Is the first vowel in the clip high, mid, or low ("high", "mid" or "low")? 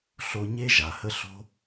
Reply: mid